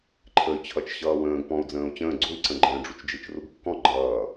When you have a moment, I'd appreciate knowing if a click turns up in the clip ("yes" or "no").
yes